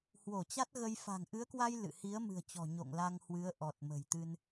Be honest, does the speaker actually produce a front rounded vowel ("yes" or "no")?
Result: no